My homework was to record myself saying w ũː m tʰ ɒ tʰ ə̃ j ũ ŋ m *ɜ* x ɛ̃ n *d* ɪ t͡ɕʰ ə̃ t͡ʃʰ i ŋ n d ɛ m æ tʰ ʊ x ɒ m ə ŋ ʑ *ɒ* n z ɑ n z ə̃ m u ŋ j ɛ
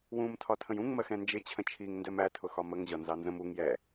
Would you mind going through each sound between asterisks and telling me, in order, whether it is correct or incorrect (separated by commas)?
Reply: correct, incorrect, correct